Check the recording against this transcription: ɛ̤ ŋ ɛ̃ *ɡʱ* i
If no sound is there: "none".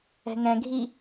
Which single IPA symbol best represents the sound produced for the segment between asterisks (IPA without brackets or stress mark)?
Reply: ɡʱ